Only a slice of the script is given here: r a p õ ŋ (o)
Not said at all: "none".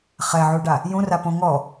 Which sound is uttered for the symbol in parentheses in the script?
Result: ɔ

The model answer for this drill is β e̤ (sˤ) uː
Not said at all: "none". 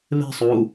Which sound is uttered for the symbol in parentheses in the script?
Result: sˤ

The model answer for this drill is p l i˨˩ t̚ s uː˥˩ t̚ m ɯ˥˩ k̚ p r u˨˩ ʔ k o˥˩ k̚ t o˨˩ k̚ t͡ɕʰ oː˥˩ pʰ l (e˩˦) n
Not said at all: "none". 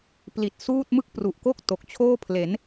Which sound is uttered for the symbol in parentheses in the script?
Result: e˩˦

